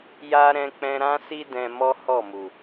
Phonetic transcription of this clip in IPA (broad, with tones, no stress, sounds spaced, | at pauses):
j a˦ ɾ ɛ̃˧ k͡p ɛ̃˧ ɾ ã˦ s i˦ d ɛ̃˧ m ɔ˦ h ɔ˦˨ m u˨